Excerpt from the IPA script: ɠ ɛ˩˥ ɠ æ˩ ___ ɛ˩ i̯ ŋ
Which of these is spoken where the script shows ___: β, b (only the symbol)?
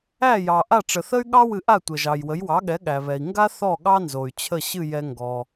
β